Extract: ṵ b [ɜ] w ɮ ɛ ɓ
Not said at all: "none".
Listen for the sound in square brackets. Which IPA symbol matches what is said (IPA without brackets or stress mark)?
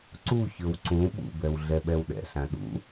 ɛ